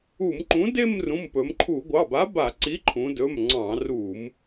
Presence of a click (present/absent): present